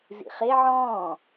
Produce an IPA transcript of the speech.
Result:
zḭχe ʕɔ̃ː

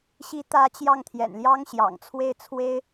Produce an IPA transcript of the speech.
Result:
ɕi˧˥t̪ä˧˥ t͡ɕjɑ˥˩ŋt̪ʰjɛ̰˨˩nljɑ˥ŋɕjɑ̰˨˩ŋ t͡sʰwe˥˩ɪ̯t͡sʰwe˥ɪ̯

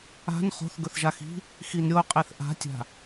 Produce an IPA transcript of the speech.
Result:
a̤n χo̤θ ɡɵθʒaxi̤ | xinɾʲo qʼeθʔa̤tʲa̤

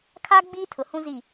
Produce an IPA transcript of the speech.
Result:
kʰa˦ ɡ͡biː˦tʰʊ˨hũ˦zi˦˨

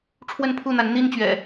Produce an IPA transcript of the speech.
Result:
ʈ͡ʂʰwə˥˨npʰu˥˨n̪a˨˦n n̪i˦nt͡ɕɥɛ̰˨˩

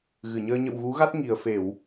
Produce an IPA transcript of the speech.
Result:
ɣɨ˧˩ɲəː˧ ɲə̰˧˨wɣu˨˦ɣa˦˥t̚ ŋi˨˩ə̯fe˧˩˨w

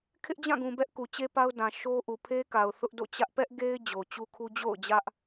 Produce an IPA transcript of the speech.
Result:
kʰɪ˦ʔd͡ʑã˦˨ɡũ˨ bɛ˦ʔku˨t͡ɕe˦pa˦ʊ̯ dã˨ʃo˦ʔu˨ pʰe˦ka˨ʊ̯ θʊ˦ʔdo̰˦˨t͡ɕä˦ʔ pɛ˦ʔ ɡe˦ɪ̯ d͡ʑo˨t͡ɕu˦kʰu˦ d͡ʑo̰˦˨ʊ̯d͡ʑä˦ʔ

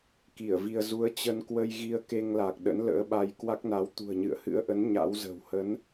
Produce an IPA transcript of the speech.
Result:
ki˧˩ə̯vi˧ə̯ zu˨˦ə̯t͡ɕə˧nkwə˧j ɣi˧ə̯ke˧ŋla˨˩k̚ ɗə̰˧˥nlə̰ː˧˥ɓa˧j kwa˦˥k̚na˨˦w t̪ṳ˨˩ə̯ɲɨ̰˧˨ə̯hɨ̰˧˥ə̯ʔə˨˦n ɲa̰˧˥wzə̤˨˩w hə˨˦n

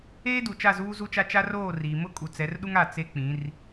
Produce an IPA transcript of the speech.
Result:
eː˦du˨ t͡ʃa˦˨zuː˦zu˦t͡ʃa˦ t͡ʃa˦roː˦˨riː˨ mʊ˦kʼu˨t͡sɛ˨˦rɗu˦ŋ a˨ t͡se˦k͡pĩ˨˦r

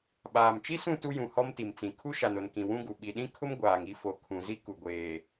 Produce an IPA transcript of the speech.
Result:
ɓaː˨mt͡ʃi˦sũ˦˨ tu˦jũ˨hɔ˦m ti˨m t͡sĩ˨ kʰu˦ʃa˨no˨nkĩ˨ wũ˦ɡu˨ ɓi˨ɗĩ˦kʰʊ˦m ɡʷaː˨ŋ i˦ fo˨kʰũ˨zi˦ku˨ ɡʷeː˨

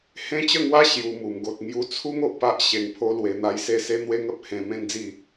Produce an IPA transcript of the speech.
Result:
hẽ˦t͡ɕə˥˧ŋwa˦ ɕju˦mu˧mɡo˦t̚ ŋju˧t͡sʰu˦ŋ o˨ʔpa˦ʔ ɕe˧ŋpʰo˦lwe˧ n̪a˦jse˥˧ se˦n̪we˦ŋə˦p̚ hẽ˧ mẽ˦nd͡zi˥˧

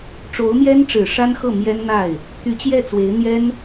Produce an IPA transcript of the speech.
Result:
ʈ͡ʂo˧˥ʊ̯mjɛ˥nʈ͡ʂɻ̩˨˩ ʂa˥nxɤ˥˩ mjɛ˥nn̪a˥˩ɪ̯ | t̪y˧˥ t͡ɕjɛ˥˩t͡swe˧˥ɪ̯ n̪jɛ˥n

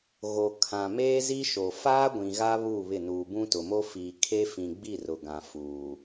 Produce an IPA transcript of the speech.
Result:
ɣo˨ kʰã˨meː˦zi˦ ʃo˨ faː˦ ɡʷĩ˨ɣa˦ βuː˦˨βɪ˦˨nuː˨ bũ˦tʊ˨mo˦ fiː˨ kʰe˦fĩ˨ ɡ͡bi˦˨rʊ˨ɡã˨ fuː˨

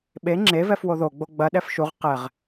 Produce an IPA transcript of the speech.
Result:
ɓe ŋ͡ǁevɛf woðoɡ͡bo ɡ͡bɐɗɛf ʃuʁ qɛʁ

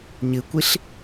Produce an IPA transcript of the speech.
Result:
ɲɨkʷiɬ

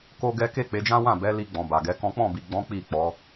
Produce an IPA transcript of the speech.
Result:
ko˦ɡɛ˦ ke˦˨k͡pe˨˦d͡ʒã˦wã˦˨ bɛ˨˦li˧ ɡ͡bɔ̃˨ba˨ɡɛ˨˦kɔ̃˦ k͡pɔ̃˦˨bi˨ɡ͡bɔ̃˨˦ k͡pi˦˨k͡pɔ˨˦

